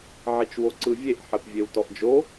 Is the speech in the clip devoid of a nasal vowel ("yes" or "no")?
yes